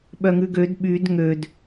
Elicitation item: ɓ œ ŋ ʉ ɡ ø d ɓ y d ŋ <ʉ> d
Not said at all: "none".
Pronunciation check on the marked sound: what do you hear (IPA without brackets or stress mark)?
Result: ø